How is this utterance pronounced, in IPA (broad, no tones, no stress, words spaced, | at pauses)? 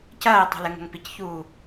cɐːɪ̯tˤo̤lɘŋo̤ŋ picçuː